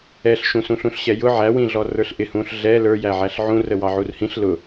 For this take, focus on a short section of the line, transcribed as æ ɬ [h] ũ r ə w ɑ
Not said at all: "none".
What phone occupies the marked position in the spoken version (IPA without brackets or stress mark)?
ʕ